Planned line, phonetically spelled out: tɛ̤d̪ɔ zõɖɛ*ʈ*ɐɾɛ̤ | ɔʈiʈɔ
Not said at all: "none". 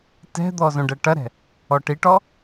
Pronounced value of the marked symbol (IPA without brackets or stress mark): ʈ